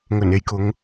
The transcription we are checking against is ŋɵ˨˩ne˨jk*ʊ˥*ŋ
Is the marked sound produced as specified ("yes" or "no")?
no